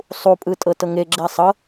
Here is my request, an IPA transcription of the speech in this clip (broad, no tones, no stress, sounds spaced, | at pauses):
sˤ u pʼ ɯ tʼ ɤ t ɤ ŋ e ɡ͡ǁ ɛ sˤ ɤ